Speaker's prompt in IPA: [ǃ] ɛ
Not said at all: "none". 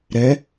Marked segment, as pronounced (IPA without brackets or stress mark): ɾ